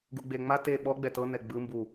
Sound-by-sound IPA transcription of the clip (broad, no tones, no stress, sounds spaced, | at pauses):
ɡ u ɡ͡b e ŋ͡m a t e ɓ ɔ ɡ͡b ɛ t ɤ n ɛ ɡ͡b ɯ m b u